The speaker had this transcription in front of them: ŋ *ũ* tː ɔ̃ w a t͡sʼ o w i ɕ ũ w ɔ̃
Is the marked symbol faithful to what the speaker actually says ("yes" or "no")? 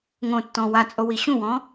no